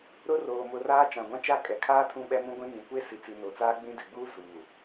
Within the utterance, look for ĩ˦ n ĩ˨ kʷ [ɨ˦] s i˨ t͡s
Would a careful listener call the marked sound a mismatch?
yes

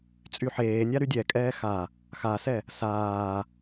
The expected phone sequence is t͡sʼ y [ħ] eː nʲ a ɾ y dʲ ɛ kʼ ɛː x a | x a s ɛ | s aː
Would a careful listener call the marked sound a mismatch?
no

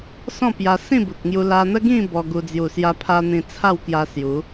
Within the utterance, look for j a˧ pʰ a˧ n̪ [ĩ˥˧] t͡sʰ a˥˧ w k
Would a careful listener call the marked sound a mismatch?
yes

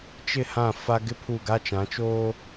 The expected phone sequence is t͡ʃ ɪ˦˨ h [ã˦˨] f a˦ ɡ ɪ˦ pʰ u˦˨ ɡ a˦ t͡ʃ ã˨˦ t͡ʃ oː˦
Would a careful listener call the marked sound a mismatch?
no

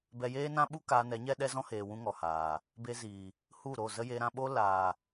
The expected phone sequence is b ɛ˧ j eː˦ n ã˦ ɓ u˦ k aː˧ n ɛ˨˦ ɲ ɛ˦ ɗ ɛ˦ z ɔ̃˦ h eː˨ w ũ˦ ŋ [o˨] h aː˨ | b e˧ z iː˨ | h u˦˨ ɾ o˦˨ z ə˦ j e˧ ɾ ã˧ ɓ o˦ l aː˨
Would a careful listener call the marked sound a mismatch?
yes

